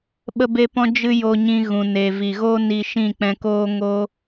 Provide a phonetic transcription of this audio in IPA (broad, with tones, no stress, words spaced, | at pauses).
ɓə˧be˧ pɔ̃˧d͡ʒɨ˧ jo˧ɲĩ˧ɣũ˨ne˨ vi˨ɣoː˦ ni˧ʃĩ˦˨k͡pɛ̃˧ koː˦ ŋo˦